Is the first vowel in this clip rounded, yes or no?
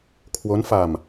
yes